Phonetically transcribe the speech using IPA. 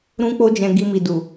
ɾ ũ˦ k͡p o˦ d͡ʒ ɛ̃˧ ɡ i˧ m i˨ d u˨

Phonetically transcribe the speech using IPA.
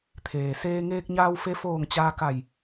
t̪ʰ eː˩ s eː˧ ŋ eː˧ k̚ ɲ aː˧ w f e˧ f oː˧˩ ŋ t͡ɕ aː˧ k a˧˩ j

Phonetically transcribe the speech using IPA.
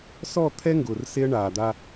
s ɔ˦˨ t̪ʰ ɛ˦ ŋ ɡ ʊː˨ r s e˦ ə̯ ɳ aː˨ d̪ a˦

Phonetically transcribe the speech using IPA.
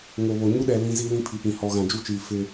ŋ o˨ β o˨ ɲ u˦ ɗ ɛ˨ l ĩ˦ z i˦ l ĩ˦ pʰ i˨ p ĩ˨ h ɔ˨ ɣ ã˨ d͡ʒ u˦ t͡ʃ iː˨ f ɪ˦

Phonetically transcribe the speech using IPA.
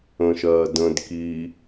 ə̃ ʃ ɜ d ə̃ d k i

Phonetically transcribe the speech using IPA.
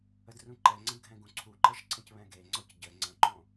ə d r ũ ǃ ɛ ŋ͡ǀ ə̃ d ɡʱ ɛ̃ ɡ ũ ǀʰ u ǃ ɜ ʃ ǀ ə̃ c β ɛ̃ ɡ e ŋ͡ǀ ɔ c ɟ ə ŋ͡ǀ ə̃ ǃ õ

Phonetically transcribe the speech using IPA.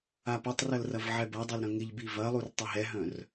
a p ɐ tˤ r ɐ l r ɐ v ʕ ɛ b ɐ dˤ ɛ l ɾ œ̃ ŋ ɪ ʎ b i v ɐ lˠ u r tˤ ə ɦ ɛ ɦ œ̃ r

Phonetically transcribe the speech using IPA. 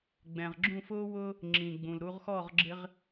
ɡ͡b ɛ̃˨ ʁ ɡ͡ǁ ũ˦˨ f ʊː˦ w ʊː˦ | ŋ͡ǁ ĩ˨ ɡ͡b ũ˨ l ɾ u˦ ʁ x ɔ˦˨ ʁ ɡ͡ǁ ɪ˦ ʁ

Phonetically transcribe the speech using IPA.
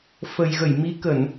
f ə˨˩ j ɣ ə˧˩ j m i˨˦ k ə˧˩˨ n

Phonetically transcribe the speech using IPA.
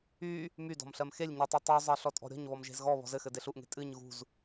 y | m y d ɔ̤ m ɬ ɜ m x e lʲ ɲ ɨ tˤ e tˤ y zˤ ɜ ɬ ɔ tʼ ɔ̤ ɾʲ ɔ̤ ɲ β ɔ m ʒ e̤ z ɣ ɔ β ɔ̤ z ɘ x ɘ d e ɬ u ʔ ŋ e̤ tʼ ɨ ɲ ɣ ṳ z

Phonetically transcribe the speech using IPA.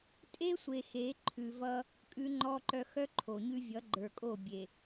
tʼ e˦ sʷ e˨ x e˨˦ ǃʰ ʉ˨ v ʌ˦ | kʼ ʉ˦ ŋ͡ǃ ɔ˦ ǃ œ˦ x œ˦ ǃʰ o˨ ɲ ʉ˦ vʲ ʌ˨˦ ɡ͡ǃ ə˞˨ kʼ o˦˨ bʲ e˨

